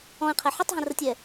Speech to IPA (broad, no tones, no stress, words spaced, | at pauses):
ɔ̃ɪ̯qʰɛ ħətˤɦə̃rətʲɛ